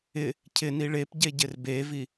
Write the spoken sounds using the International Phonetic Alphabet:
ɪ | cʰ ɪ n i ɭ e p ɟ e ɟ ɪ r b e v i

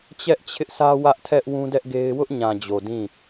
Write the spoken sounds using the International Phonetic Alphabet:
t͡ɕ ɛ˦ ʔ t͡ɕʰ ɪ˦ ʔ s ä˦ w ä˦ ʔ tʰ ɛ˦ ʔ w ũ˦ d ɛ˦ ʔ ɡ e˦ ɪ̯ w ʊ˦ ʔ ɲ ã˨ d͡ʑ o˨ d ĩ˦˨

